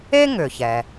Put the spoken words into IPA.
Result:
e˥ ŋ ʏ˩ ç ɛ˩

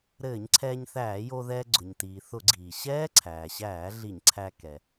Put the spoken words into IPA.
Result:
ɾ ɘː˧˩˧ ɲ ǀʰ ɛː˧ ɲ θ æː˧˩˧ j o˧ ð ɛː˧ ɡ͡ǀ ʊ˩ ɲ t iː˩ θ ʊ˧˩˧ ɡ͡ǀ iː˩ ɕ ɛː˦˥ ǀʰ æː˩ ɕ æː˧˩˧ ɮ i˧˩˧ ɲ ǀʰ æ˧ k ɛ˩

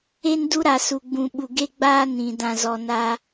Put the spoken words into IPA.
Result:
e˦ n d u˦ ɾ a˨ s u˨ ɡ͡b ũ˨ ɓ u˨ ɡ e˦ ɡ͡b aː˦ n ĩ˨ d ã˨ z ɔ˨ n a˦

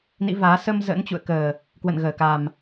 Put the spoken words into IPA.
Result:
n ḭ˧˥ v aː˨˦ s ə˧ m z ə̰ː˧˥ n t͡ɕ ṵ˧˨ ə̯ k əː˨˩ | k w ə̰˧˨ n ɣ əː˧˩ k a˨˩ m

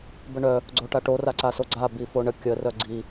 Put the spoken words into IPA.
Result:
b ə ɳ œ | ɡ͡ǀ o ʈ a ʈ o r a ǀ a s o ɡ͡ǀ a b i f o ɳ ə kʲ ə r œ ɡ͡ǀ i

